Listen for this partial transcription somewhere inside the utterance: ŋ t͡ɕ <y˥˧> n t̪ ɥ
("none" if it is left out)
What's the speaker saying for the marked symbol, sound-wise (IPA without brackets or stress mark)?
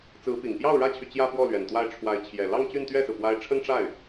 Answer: y˥˧